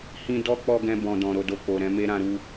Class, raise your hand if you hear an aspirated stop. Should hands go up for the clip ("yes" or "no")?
no